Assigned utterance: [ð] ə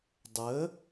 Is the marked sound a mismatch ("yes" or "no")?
yes